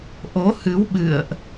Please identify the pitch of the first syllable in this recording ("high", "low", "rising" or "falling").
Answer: rising